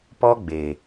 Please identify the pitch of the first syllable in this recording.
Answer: high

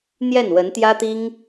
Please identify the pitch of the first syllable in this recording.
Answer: falling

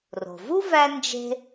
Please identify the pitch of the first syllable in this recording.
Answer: low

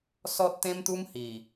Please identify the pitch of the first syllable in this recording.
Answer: high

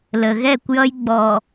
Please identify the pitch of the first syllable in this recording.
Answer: low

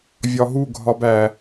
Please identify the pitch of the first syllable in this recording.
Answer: low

